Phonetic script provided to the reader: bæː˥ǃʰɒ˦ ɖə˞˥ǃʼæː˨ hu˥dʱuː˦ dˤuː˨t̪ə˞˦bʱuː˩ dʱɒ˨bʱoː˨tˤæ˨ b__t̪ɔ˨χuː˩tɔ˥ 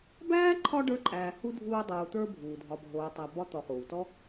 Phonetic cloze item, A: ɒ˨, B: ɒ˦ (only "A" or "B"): B